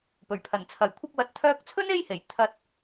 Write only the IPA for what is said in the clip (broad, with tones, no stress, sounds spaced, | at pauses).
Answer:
p ɵ˨˩ ɥ pʰ ɐ˨˩ n t͡sʰ ɐ˨˩ j kʷʰ ɐ˧ p̚ w ɐ˨˥ t̚ t̪ʰ œː˧ k̚ t͡sʰ ɵ˥ n e˥ j h e˨˩ j t̪ʰ ɐ˧ t̚